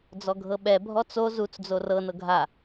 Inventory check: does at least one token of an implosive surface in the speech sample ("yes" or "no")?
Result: yes